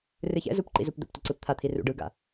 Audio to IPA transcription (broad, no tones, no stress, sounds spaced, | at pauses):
r ɨ ç ɛ̰ z u p ǃ ḭ z u p d̪ ə̰ p tʷ ə ǀ ɯ p t̪ʰ a t̪ʰ i r ṵ ɖ ɯ ɡ a̰